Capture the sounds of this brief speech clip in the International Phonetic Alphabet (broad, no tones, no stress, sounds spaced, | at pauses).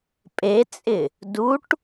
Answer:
pʼ e t͡sʼ ɪ | d u ʈ